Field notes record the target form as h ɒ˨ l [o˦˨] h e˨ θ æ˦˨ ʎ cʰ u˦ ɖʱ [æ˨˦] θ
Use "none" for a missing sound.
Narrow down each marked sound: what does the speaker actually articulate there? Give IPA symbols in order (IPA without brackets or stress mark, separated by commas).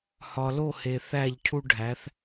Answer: o˦˨, æ˨˦